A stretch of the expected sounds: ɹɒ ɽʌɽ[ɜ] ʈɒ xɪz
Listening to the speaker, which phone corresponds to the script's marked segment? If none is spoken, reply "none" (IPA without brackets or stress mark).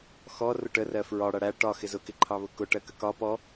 æ